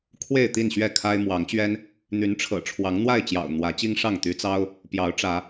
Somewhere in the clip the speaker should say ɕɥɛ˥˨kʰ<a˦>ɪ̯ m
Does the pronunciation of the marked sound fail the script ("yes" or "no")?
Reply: no